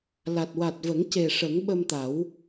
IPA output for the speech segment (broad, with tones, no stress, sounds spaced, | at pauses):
l a˨˩ t̚ w a˨˩ t̚ v ə˨˩˦ ŋ c e˨˩ ʂ ə˨˩˦ ŋ ɓ ə˧ m t̪ a˨˩˦ w